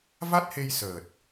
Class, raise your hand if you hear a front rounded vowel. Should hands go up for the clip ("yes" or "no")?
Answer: no